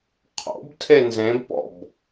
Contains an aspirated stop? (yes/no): yes